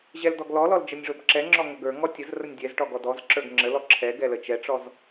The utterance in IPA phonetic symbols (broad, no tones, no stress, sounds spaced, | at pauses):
ʑ ɛ l d ɔ ɡ l ɔ l ɔ l d͡ʒ ə nʲ ʐ o b ǁ ɛ ŋ͡ǁ ɔ ŋ ə ɡ ə˞ ŋ ɔ tʲ ə z r ə nʲ dʲ ɛ z ʈ ɔ ɡ ɔ d ɔ z ǁ ə˞ ɡ ŋ͡ǁ ə l ɔ ǁʰ ɛ ɡ ɛ l ə t͡ʃ ɛ ʈ͡ʂ ɔ z